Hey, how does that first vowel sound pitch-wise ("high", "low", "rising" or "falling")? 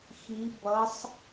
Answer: rising